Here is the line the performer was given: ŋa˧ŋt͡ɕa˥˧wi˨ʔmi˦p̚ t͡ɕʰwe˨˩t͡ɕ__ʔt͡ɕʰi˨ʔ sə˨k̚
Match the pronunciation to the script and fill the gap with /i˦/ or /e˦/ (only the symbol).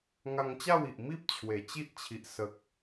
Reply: i˦